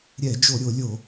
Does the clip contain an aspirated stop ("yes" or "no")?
no